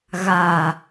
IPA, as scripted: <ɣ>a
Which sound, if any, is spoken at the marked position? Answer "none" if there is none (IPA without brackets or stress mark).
ɣ